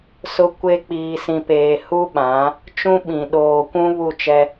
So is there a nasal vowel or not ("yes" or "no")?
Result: yes